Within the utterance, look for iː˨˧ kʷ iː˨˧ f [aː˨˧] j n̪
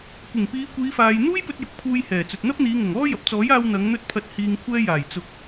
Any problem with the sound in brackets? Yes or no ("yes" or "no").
yes